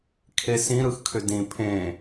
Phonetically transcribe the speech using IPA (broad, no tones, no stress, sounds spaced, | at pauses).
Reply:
kʰ e s ĩ ɾ ɯ x kʰ ʏ d ĩ pʰ ẽ